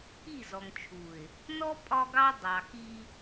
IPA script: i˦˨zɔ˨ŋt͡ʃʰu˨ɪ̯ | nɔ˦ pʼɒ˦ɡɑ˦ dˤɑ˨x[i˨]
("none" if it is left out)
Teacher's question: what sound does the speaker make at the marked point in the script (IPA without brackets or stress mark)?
i˦